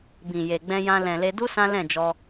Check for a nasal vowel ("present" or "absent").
present